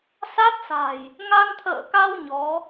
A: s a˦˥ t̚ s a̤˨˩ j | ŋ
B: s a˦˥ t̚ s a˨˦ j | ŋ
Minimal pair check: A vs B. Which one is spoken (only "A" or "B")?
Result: A